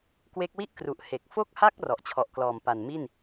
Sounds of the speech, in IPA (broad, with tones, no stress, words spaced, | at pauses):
kwe˦˥k̚ wi˥˩ʔkru˨˩ʔ he˨˩k̚ fo˥˩k̚ha˥˩k̚ rɔ˨˩ʔt͡ɕʰɔ˨˩ʔklɔː˨˩mpa˨˩n mi˥˩n